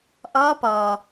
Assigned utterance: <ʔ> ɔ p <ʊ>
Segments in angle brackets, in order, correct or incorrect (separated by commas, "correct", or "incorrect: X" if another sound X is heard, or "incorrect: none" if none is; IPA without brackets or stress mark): correct, incorrect: ɔ